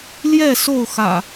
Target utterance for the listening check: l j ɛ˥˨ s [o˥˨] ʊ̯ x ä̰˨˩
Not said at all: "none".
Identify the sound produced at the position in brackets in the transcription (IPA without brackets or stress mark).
o˥˨